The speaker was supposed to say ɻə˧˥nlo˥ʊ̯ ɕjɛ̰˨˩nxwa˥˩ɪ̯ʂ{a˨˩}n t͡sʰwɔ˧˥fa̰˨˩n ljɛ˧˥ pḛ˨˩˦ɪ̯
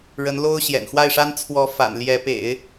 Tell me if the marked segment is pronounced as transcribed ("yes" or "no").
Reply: no